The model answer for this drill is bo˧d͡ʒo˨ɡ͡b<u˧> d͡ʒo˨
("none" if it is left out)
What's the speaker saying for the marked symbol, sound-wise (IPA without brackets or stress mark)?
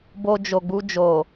u˧